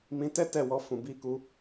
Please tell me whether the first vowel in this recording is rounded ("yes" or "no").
no